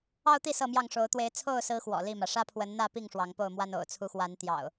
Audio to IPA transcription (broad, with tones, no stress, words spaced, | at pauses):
ɑ˦ʊ̯t̪i˥˨ sɤ˥˨mjɑ˥˨ŋ ʂo˨˦ʊ̯t̪we˨˦ɪ̯ t͡sʰo˥˨ʊ̯sɹ̩˨˦ xwɔ̰˨˩li˥˨mä˩ ʂä˦pʰwə˨˦nn̪ä˥˨pi˥˨ŋ ʂwɑ˨˦ŋpo˥˨ʊ̯mwa˦n o̰˨˩ʊ̯t͡sʰu˨˦xwa˨˦n t̪jɑ̰˨˩ʊ̯